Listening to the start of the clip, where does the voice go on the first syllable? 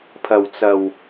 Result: low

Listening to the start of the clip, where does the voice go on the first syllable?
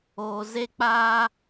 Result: low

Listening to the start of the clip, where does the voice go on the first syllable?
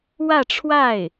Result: falling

